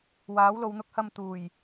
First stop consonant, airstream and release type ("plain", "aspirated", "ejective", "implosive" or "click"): plain